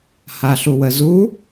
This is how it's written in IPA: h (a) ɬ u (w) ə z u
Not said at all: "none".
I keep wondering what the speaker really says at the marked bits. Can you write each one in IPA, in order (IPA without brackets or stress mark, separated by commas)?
a, w